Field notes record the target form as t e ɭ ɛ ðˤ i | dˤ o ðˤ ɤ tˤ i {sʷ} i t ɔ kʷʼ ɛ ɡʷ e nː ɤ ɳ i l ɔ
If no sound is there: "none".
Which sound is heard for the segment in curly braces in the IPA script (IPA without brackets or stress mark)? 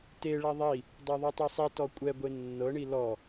sˤ